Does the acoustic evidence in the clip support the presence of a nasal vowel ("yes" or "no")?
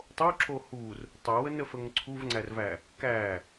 no